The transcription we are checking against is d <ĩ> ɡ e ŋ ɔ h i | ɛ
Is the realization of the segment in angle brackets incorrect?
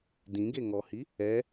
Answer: no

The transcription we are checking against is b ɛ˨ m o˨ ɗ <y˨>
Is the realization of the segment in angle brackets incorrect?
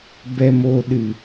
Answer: yes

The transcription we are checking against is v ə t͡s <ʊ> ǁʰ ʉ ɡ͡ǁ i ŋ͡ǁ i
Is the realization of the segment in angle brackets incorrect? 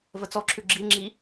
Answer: yes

